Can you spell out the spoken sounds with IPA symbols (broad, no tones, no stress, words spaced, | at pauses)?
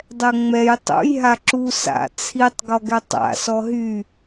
dˤɛŋ͡mɛj tˤṵj ɦaǁu sa̰ t͡sʰitˤ ɡɔɡɛtˤa̰ sɔɦy